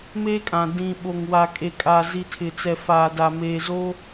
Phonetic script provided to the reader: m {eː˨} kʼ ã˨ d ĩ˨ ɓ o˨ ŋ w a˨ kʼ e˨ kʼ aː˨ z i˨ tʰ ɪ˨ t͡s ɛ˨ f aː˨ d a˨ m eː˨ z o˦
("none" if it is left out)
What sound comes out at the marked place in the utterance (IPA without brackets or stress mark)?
eː˦